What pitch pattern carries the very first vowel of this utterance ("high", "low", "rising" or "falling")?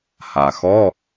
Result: low